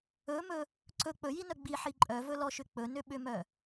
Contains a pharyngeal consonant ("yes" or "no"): yes